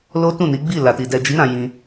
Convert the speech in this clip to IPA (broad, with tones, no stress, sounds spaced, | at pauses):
l o˦ t ũ˦˨ n i˨˦ ɡ͡b i˦˨ l a˨ t i˨ d ɛ˨ d͡ʒ i˨˦ ɾ ã˧ j ĩ˧